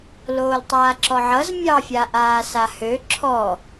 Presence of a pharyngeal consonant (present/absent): present